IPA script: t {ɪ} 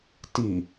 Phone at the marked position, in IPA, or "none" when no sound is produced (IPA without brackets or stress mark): i